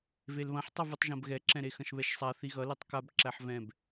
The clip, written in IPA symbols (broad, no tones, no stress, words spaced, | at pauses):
velβɐ̃ħtˤʌ vutˤʒɐ̃bɣɛǁɛ̃ ɾexɐ̃ʃβɛʃsˤa θiɣʌletˤ kab ǁæħvɛ̃b